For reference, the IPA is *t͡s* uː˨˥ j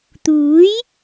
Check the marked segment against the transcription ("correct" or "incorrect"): incorrect